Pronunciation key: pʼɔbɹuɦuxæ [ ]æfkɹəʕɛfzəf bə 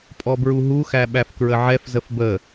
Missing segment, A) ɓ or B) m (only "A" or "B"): A